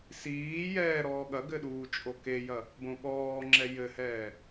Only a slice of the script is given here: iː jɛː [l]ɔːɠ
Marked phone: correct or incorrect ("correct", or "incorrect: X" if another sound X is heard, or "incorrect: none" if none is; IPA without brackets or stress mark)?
incorrect: ɾ